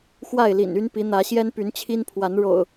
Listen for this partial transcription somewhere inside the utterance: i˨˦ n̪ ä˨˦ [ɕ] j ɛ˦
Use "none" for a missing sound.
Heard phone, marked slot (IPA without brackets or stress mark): ɕ